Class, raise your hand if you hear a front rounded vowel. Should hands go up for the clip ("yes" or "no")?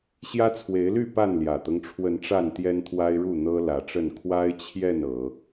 yes